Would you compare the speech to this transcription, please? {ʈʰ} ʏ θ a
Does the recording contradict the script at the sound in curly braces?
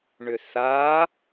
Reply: yes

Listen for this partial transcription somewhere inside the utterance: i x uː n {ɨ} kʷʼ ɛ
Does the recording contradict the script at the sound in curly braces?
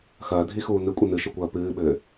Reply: no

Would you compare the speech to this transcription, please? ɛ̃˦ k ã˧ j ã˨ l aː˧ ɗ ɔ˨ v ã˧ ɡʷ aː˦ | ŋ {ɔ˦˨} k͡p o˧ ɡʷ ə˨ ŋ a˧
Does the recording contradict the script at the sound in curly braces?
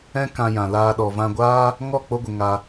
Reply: no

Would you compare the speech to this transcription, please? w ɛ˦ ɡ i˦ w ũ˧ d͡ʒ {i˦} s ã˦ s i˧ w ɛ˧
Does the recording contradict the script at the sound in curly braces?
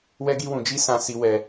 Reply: no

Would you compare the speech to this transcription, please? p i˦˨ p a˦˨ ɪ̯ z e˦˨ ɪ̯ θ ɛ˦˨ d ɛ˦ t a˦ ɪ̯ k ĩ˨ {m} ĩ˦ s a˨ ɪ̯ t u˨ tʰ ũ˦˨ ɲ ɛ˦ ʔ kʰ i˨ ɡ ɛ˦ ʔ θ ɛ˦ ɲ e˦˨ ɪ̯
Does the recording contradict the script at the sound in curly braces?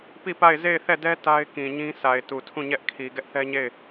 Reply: yes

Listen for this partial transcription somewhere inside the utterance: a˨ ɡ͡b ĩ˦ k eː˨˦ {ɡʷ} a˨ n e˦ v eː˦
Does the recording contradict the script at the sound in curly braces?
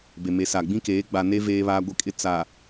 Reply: yes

